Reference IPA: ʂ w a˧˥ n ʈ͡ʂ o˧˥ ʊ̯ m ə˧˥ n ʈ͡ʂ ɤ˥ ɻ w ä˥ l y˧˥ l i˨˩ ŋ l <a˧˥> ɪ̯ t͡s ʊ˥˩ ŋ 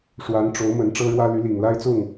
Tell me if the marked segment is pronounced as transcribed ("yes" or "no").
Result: no